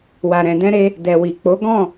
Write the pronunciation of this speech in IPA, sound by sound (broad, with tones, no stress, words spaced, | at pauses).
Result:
wa˨ɾɛ̃˨ dɛ̃˧ɾe˧ | dɛ˨wi˨ k͡po˨˦ɡɔ̃˦˨